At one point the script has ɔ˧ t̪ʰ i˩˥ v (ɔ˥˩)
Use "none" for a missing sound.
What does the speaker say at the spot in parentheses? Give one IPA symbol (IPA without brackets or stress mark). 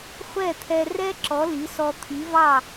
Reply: ɑ˥˩